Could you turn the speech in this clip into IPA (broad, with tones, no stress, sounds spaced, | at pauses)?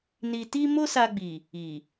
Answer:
n i˧ t i˦ m o˦ s a˧ ɡ͡b i˨ | i˨